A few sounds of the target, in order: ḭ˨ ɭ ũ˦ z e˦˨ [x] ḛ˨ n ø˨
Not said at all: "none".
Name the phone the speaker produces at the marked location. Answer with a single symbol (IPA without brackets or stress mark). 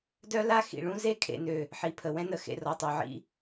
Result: kʰ